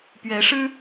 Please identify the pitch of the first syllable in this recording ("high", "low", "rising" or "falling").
rising